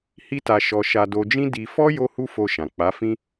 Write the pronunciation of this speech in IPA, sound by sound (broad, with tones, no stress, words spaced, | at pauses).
hi˦ta˧ʃɔ˧ ʃa˧do˧d͡ʒĩ˦ di˧fɔ˦ jo˦hu˦fo˧ʃã˨ k͡pa˨˦fĩ˦